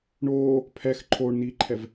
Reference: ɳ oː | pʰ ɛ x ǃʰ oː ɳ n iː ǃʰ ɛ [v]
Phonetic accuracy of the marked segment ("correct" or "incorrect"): correct